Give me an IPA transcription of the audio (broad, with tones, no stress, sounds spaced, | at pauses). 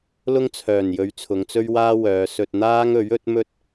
l ʊ˥ ŋ t͡sʰ œː˨˩ n j ɵ˨˧ ɥ t͡sʰ ʊ˨˧ ŋ t͡s ɵ˥ ɥ w aː˥ w œː˨˧ s ɵ˧ t̚ n̪ aː˥ ŋ ɵ˨˥ ɥ ɵ˨˥ t̚ m ɵ˥ t̚